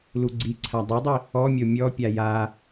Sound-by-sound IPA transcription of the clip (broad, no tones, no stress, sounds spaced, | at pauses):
l u ɡ͡ǀ i ǀʰ a dˤ o dˤ i | ɔ mʲ o mʲ ɔ pʲ a j a